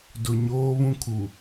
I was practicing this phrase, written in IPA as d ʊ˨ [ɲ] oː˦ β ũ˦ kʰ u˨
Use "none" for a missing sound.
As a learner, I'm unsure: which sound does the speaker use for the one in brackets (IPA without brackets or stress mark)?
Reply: ɲ